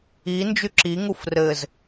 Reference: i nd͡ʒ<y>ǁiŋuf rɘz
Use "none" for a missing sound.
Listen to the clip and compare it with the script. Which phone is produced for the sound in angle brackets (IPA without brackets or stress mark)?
y